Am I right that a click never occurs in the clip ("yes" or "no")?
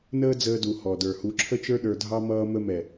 no